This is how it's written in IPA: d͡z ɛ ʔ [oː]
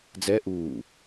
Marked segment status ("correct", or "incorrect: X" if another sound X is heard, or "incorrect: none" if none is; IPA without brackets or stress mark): incorrect: uː